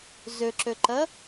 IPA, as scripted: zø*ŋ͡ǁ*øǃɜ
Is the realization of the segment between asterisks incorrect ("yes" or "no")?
yes